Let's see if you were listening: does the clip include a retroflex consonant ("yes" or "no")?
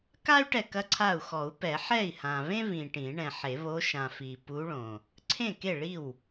yes